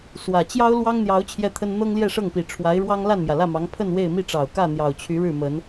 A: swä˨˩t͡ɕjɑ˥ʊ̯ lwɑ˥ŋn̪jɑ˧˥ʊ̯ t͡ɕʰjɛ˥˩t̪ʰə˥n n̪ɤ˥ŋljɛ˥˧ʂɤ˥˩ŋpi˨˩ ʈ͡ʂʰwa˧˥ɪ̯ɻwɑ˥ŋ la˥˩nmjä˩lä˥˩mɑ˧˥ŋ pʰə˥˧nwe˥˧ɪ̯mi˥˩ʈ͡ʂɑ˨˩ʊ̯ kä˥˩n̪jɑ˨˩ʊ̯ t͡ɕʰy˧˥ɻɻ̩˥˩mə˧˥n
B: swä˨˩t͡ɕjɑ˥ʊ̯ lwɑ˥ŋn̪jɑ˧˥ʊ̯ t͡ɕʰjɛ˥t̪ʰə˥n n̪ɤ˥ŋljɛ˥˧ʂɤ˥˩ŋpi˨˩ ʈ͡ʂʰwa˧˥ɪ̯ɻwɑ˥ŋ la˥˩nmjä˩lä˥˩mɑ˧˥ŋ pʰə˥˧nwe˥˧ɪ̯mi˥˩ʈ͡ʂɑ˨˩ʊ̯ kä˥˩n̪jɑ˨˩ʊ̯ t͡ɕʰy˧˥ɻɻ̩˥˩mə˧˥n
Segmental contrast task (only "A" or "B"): A